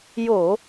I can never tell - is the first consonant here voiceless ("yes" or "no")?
no